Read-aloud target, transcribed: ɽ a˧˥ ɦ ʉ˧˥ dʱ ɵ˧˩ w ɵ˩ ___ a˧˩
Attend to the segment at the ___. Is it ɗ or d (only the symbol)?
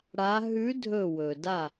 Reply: d